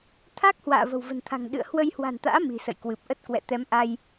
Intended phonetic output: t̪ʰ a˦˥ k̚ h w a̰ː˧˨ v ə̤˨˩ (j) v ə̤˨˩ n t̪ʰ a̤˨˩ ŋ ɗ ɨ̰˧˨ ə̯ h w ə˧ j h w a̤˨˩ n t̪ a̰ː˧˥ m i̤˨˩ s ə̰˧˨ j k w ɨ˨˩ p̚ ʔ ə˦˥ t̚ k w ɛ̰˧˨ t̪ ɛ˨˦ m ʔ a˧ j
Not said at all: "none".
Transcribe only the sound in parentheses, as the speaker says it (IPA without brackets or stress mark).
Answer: w